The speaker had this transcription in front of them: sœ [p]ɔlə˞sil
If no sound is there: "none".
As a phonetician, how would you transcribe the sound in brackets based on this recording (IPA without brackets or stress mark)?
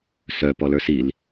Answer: p